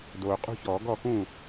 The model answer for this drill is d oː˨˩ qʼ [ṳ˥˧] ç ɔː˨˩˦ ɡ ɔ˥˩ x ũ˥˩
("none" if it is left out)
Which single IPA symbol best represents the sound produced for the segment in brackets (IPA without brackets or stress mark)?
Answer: ṳ˥˧